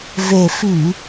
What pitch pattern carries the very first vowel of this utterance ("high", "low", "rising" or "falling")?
low